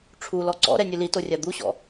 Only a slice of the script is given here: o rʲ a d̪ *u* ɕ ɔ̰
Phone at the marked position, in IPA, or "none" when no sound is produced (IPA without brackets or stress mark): u